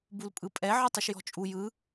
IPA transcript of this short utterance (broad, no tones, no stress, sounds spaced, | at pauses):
b u l pʼ ɯ pʼ ɛ ʕ ɨ tˤ ɯ ʃ j ɔ̤ t͡ʃʼ u j ɯ